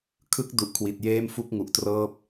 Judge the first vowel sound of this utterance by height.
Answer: high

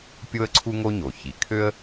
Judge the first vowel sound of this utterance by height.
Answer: mid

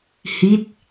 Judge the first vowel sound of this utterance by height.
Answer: high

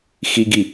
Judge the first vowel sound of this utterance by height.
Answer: high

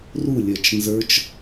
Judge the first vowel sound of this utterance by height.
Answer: high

